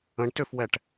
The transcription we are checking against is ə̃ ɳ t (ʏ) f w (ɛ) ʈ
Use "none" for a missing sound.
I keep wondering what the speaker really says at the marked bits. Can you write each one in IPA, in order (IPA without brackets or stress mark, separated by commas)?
ʏ, ɛ